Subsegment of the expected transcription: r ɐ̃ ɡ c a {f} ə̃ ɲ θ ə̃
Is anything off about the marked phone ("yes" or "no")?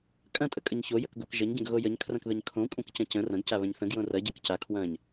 yes